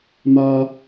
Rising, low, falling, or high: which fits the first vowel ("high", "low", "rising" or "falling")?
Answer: high